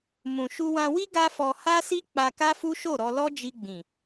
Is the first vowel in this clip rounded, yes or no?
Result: yes